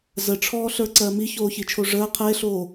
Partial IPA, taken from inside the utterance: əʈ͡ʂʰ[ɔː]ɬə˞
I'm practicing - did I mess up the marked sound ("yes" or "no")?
no